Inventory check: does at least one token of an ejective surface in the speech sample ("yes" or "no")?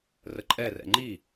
yes